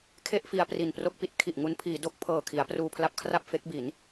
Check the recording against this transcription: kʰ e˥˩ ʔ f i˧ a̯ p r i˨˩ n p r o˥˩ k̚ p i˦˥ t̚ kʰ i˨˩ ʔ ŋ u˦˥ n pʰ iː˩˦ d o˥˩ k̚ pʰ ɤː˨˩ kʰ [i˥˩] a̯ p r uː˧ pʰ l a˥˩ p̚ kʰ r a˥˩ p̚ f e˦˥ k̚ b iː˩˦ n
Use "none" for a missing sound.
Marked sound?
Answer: i˩˦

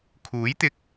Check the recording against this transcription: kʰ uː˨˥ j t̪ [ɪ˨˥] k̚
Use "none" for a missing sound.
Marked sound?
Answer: ɪ˧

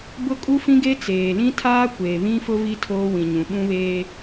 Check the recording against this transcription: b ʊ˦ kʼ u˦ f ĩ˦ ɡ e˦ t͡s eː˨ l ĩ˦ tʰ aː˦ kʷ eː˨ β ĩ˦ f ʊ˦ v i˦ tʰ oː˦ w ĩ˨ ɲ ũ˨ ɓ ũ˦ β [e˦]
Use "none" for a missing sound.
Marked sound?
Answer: eː˦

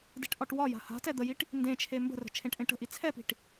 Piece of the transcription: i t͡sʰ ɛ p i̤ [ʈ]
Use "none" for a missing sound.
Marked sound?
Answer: ʈ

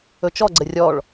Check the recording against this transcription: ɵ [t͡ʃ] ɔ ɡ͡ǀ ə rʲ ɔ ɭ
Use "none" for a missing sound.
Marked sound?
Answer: t͡ʃ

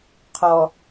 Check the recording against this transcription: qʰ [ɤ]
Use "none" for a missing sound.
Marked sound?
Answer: ɔ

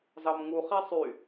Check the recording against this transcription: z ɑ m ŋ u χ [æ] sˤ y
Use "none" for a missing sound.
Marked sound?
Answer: æ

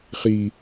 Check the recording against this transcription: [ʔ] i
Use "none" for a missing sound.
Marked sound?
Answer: χ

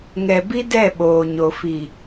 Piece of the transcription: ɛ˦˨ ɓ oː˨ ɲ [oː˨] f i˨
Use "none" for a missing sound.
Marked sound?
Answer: o˨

